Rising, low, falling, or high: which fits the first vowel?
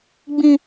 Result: high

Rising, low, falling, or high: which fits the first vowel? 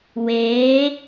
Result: rising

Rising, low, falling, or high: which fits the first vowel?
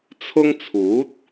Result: high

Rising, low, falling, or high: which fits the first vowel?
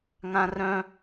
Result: high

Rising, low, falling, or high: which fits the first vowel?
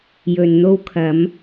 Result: low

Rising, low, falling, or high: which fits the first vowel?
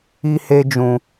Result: high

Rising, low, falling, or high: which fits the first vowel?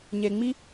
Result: low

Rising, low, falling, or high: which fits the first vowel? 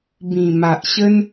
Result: low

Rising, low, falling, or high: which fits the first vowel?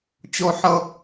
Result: high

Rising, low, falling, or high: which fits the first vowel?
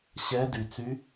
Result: rising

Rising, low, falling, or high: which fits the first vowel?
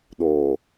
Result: low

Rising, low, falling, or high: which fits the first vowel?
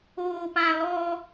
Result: low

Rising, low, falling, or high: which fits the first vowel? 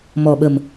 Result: low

